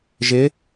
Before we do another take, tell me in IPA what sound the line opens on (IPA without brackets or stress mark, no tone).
ʒ